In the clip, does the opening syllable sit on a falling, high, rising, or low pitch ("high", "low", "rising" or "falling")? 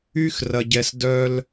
high